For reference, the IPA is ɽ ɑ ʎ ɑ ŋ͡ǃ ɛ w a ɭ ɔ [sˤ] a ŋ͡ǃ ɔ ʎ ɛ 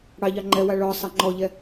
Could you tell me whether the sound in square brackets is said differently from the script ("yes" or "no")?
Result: no